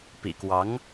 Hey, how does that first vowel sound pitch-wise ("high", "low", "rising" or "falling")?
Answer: low